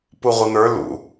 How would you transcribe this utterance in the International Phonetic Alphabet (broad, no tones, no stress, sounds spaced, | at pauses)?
p u ʁʷ ɪ n̪ ə˞ l ṵ